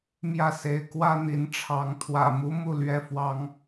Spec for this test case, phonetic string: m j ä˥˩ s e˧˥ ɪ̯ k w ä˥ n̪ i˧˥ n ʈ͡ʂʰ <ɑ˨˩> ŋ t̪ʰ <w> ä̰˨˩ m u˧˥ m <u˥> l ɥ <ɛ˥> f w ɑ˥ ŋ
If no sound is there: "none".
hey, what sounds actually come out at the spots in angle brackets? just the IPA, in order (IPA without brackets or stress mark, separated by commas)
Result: ɑ˧˥, w, u˥˩, ɛ˥